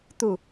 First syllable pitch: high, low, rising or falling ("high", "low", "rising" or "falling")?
falling